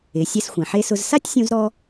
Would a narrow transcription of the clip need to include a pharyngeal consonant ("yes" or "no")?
yes